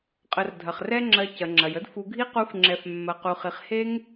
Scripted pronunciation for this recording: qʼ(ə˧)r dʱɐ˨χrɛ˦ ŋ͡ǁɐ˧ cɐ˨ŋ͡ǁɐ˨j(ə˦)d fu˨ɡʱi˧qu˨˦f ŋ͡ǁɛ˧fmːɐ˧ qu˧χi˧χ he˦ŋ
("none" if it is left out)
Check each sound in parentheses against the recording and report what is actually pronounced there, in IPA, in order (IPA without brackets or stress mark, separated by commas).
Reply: ə˨, ə˦